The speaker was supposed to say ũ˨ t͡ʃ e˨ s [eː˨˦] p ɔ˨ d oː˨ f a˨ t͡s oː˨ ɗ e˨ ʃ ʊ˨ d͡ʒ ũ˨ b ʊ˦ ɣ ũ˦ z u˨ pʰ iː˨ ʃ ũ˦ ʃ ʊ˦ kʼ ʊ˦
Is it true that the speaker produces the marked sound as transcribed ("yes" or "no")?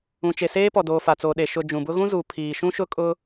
no